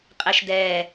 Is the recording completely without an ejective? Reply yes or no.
no